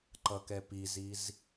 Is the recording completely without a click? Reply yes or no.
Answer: no